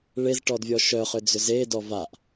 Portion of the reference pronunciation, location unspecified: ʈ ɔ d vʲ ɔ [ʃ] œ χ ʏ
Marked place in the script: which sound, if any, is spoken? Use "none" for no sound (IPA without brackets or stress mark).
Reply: ʃ